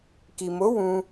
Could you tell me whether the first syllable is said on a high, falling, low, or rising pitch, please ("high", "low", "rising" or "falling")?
low